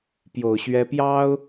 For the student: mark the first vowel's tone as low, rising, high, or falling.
low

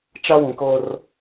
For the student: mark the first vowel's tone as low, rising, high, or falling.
high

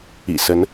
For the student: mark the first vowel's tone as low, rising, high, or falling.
low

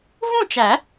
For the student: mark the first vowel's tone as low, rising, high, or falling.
falling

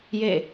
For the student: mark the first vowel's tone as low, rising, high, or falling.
falling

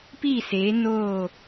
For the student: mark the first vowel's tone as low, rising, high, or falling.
falling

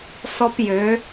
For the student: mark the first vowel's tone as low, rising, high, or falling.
high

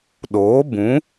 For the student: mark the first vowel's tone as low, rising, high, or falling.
rising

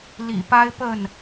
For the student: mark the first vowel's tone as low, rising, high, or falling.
low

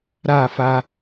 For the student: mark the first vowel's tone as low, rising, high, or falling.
falling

